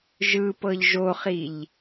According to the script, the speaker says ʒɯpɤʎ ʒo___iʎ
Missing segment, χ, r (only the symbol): χ